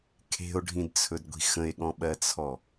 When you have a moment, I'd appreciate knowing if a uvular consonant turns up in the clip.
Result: no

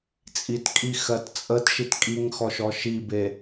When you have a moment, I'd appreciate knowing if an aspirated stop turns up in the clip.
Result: no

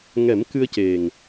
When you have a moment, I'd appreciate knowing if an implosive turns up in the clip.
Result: no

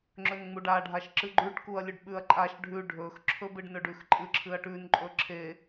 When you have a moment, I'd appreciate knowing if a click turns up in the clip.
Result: yes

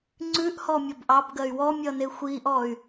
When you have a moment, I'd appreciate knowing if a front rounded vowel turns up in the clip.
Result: yes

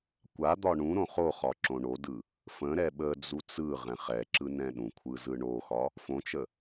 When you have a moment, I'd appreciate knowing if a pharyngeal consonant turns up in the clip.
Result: no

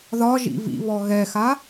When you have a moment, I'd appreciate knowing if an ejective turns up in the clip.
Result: no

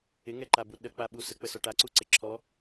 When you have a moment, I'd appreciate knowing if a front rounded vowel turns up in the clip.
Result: no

